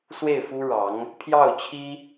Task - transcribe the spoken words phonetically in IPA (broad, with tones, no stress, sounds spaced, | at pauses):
s w e˥˩ ɪ̯ f u˥ ɻ ɑ˧˥ ŋ | pʰ j ɑ˥˩ ʊ̯ t͡ɕʰ i˥